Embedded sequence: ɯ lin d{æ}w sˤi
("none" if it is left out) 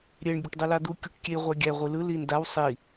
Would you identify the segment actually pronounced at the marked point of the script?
a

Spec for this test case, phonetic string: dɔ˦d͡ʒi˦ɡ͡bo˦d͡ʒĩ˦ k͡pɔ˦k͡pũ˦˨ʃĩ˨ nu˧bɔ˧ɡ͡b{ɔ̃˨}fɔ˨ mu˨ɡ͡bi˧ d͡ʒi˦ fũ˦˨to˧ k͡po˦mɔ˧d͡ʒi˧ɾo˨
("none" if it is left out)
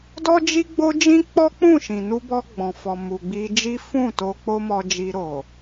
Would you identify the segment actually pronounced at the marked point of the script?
ɔ̃˨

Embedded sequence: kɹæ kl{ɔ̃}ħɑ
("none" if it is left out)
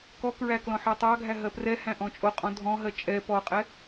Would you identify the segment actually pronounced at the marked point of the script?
ɔ̃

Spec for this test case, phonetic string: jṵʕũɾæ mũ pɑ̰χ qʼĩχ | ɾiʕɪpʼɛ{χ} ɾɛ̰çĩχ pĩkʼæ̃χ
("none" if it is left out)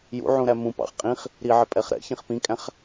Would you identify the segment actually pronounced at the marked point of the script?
χ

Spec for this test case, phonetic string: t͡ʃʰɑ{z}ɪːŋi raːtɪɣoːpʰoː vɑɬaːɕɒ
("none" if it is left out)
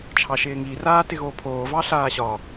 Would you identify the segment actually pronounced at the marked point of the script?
ʃ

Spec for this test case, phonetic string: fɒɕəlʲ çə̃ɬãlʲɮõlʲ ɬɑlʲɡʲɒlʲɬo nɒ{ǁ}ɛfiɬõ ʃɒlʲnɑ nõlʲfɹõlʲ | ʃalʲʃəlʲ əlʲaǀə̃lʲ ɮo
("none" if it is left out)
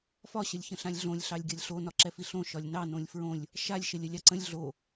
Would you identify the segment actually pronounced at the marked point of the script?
ǁ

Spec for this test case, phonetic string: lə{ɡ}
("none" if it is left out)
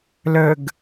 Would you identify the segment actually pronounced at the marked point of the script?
ɡ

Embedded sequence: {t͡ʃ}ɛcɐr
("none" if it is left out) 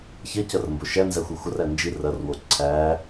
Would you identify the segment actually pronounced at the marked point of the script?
ç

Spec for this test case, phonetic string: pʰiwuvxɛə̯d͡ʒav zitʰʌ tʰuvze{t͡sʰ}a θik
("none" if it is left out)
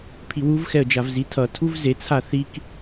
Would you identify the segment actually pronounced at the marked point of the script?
t͡sʰ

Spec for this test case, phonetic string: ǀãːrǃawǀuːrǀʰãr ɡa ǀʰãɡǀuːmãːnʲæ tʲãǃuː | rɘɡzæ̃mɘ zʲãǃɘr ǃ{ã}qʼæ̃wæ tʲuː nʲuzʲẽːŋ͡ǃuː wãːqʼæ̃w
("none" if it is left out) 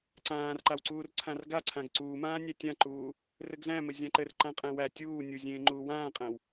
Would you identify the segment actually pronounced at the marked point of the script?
ã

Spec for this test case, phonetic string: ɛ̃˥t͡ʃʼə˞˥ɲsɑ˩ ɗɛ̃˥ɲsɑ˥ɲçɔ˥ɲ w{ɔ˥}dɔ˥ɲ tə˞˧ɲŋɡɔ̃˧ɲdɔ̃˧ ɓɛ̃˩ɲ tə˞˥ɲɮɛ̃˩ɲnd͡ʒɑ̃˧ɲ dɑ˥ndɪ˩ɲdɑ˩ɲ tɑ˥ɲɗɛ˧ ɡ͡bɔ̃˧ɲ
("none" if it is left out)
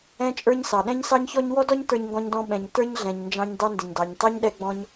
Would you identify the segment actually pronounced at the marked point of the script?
ɔ˥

